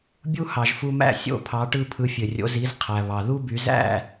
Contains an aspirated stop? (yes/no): yes